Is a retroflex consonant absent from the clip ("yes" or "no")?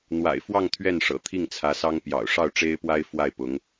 no